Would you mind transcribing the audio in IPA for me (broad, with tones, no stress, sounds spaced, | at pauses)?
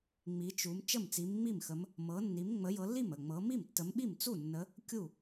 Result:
ŋ͡m i˨˦ t͡ʃ u˨˦ m t͡ʃ ə˥˩ m t͡s i˨˦ m ŋ͡m i˥˩ m x ə˨˦ m | m ɤ˨˦ nː i˨˦ m ŋ͡m ə˨˦ j ɤ˨˦ lː i˥˩ m ə˥˩ ŋ͡m ɤ˨˦ m i˥˩ m tː ə˨˦ m ɓ i˥˩ m t͡s u˥˩ nː ə˨˦ | kʲ u˥˩